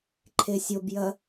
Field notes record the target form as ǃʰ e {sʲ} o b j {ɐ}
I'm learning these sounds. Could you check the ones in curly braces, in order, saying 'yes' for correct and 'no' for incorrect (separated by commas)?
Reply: yes, yes